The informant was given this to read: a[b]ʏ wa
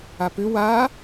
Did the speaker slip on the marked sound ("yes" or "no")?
yes